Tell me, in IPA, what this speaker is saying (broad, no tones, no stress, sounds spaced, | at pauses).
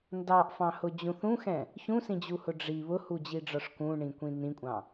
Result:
n d ɑ ʔ f ɑ̃ h ʊ d͡ʑ ũ θ ũ x ɛ̃ | ç ũ s ĩ d͡ʑ u h ʊ ɖ͡ʐ i β ʊ h u d͡ʑ i ɖ͡ʐ ɒ ʂ k ũ ɳ ĩ kʷ ĩ n ĩ kʷʼ ɑ̃